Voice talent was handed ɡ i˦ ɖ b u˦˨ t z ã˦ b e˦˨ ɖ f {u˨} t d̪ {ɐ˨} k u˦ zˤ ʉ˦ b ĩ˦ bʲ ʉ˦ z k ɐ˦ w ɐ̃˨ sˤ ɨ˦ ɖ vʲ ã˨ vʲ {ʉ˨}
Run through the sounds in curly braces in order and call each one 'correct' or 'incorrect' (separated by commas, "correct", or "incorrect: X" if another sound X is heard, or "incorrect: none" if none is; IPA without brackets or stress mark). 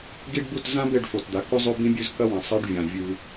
incorrect: o˨, incorrect: a˨, incorrect: ʉ˦